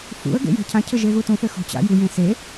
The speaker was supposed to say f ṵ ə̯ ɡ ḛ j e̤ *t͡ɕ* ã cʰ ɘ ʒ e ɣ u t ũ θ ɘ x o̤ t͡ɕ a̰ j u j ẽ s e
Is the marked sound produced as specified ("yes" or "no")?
no